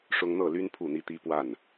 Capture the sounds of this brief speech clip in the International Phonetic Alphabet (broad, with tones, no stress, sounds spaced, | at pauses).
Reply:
ʂ ʊ˦ ŋ n̪ ɤ˥˨ l y˦ n pʰ u˥˨ n̪ i˦ t̪ i˦ p w a˥˨ n